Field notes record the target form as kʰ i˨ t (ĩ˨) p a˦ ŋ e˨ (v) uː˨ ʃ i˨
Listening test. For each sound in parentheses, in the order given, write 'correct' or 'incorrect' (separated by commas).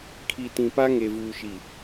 correct, correct